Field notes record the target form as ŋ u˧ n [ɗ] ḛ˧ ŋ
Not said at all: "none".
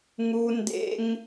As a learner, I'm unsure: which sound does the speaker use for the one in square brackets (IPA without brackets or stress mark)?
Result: d